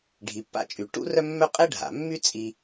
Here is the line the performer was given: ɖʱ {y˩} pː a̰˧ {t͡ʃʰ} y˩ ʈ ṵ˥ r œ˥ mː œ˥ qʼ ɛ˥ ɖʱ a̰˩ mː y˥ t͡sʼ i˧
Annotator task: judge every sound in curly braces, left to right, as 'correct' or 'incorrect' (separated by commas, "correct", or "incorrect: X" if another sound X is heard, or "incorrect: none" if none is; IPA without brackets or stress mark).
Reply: incorrect: i˩, incorrect: t͡ʃʼ